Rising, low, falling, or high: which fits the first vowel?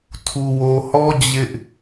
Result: low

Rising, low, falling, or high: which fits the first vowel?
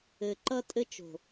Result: low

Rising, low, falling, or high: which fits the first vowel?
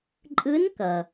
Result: rising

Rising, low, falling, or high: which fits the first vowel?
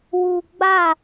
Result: low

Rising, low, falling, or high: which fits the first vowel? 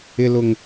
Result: low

